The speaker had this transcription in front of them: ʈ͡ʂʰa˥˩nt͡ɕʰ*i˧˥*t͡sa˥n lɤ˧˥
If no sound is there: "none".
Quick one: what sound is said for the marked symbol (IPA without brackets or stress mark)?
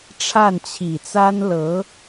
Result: i˨˩